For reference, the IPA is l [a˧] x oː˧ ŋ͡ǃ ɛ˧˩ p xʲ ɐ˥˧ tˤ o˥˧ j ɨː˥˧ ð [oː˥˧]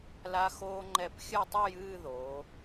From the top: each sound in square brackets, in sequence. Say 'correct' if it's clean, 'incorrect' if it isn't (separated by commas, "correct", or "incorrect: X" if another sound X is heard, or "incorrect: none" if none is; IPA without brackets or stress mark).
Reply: correct, incorrect: oː˩˧